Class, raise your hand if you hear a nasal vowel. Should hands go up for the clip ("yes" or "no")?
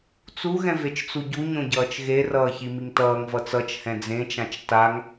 yes